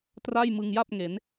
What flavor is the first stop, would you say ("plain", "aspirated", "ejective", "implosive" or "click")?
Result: plain